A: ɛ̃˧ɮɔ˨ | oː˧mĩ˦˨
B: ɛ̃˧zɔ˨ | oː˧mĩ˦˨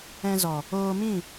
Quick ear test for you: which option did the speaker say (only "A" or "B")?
B